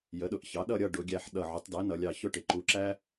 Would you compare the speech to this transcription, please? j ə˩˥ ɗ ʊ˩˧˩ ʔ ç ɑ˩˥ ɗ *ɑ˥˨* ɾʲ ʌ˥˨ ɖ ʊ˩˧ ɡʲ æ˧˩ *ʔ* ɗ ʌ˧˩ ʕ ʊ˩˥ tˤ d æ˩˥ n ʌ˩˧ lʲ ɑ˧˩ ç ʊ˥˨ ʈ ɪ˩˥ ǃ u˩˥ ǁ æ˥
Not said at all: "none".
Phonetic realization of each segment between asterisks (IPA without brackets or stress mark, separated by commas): ʌ˥˨, ħ